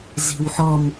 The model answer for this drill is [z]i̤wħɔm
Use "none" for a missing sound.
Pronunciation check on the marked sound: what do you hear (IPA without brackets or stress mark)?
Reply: z